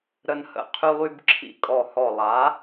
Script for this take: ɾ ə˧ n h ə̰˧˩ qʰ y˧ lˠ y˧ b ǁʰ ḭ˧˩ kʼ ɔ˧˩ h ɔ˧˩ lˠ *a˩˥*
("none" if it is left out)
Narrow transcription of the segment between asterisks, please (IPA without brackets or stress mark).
a˩˥